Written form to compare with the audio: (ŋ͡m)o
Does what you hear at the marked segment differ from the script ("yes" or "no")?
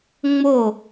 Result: no